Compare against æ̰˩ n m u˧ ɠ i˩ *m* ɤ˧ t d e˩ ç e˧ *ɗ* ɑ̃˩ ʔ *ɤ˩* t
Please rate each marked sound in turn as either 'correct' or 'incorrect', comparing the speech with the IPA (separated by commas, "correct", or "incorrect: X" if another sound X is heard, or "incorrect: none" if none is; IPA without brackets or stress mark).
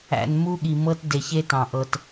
correct, incorrect: t, correct